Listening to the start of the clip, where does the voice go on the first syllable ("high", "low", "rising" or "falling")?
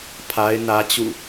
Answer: high